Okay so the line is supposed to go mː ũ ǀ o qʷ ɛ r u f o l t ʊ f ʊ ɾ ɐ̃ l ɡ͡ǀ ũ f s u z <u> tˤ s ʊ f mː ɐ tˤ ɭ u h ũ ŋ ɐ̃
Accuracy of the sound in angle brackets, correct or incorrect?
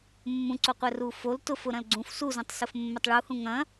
incorrect